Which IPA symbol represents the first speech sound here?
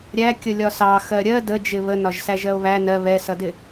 ɾʲ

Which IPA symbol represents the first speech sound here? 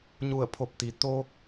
ɲ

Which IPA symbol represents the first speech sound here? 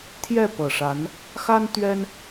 t̪ʰ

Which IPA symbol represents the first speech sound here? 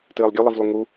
t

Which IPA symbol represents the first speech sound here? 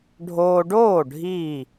ɖʱ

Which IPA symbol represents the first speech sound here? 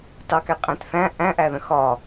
t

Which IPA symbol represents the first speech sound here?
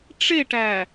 ʈ͡ʂ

